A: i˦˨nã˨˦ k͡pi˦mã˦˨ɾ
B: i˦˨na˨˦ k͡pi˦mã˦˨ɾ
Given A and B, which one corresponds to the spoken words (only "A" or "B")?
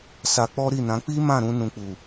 A